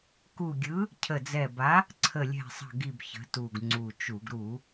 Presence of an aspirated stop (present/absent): present